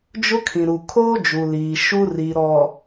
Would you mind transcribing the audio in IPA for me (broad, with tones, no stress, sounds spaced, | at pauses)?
d͡ʒ ʊ˦ kʰ ĩ˨ ɾ u˨ kʰ oː˦ d͡ʒ u˨ l iː˨ ʃ u˦ r i˨ ɾ ɔ˨